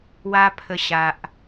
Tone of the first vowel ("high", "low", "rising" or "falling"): high